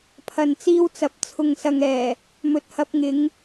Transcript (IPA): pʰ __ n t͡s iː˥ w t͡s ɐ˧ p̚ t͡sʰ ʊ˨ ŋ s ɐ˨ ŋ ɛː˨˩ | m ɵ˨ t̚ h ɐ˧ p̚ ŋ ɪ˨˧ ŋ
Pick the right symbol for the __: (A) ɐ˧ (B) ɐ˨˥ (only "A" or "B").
A